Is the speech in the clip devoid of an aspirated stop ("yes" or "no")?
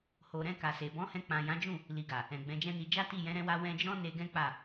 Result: yes